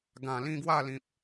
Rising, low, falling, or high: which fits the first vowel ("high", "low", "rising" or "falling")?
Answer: low